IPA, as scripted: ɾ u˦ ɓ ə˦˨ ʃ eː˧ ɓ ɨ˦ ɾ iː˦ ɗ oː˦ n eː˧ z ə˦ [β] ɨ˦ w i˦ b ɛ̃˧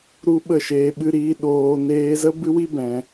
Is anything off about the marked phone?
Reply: yes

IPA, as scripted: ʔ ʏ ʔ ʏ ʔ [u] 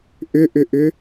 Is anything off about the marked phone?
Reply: yes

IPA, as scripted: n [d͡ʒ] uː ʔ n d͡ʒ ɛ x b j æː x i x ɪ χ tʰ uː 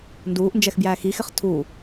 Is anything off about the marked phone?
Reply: yes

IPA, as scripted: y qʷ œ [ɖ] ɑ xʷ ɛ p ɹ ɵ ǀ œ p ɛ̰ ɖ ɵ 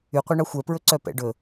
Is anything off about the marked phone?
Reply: yes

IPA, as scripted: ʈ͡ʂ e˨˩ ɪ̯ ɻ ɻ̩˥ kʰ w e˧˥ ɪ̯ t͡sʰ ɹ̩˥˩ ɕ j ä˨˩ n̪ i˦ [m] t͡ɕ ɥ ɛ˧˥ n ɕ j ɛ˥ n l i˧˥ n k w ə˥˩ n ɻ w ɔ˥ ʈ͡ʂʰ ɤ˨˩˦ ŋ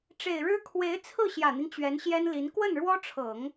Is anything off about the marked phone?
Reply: yes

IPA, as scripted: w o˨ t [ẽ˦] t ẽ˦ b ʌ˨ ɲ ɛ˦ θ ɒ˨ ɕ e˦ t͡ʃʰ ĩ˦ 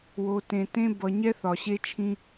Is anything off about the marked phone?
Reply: yes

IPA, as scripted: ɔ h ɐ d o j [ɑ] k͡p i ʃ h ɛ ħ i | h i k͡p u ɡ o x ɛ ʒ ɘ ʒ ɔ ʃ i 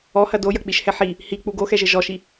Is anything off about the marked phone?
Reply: yes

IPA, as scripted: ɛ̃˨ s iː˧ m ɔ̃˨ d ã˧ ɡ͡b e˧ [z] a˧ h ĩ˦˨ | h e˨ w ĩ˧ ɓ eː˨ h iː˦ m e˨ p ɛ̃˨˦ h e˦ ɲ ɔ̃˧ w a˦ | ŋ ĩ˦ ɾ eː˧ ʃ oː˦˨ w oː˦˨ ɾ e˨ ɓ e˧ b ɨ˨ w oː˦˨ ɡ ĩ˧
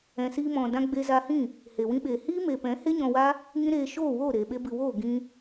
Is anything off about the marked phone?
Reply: no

